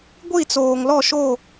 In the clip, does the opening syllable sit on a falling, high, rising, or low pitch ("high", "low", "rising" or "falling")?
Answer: falling